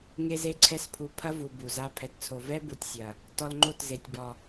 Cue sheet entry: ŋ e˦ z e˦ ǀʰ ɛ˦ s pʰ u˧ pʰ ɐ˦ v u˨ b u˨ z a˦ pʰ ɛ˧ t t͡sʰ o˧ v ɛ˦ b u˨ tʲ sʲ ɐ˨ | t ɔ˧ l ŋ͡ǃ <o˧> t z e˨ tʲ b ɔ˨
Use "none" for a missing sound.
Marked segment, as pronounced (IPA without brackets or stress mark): o˦˨